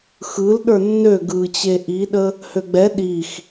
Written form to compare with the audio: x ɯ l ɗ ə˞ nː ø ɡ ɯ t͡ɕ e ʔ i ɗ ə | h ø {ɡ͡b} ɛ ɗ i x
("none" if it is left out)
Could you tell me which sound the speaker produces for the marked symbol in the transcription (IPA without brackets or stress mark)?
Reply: ɡ͡b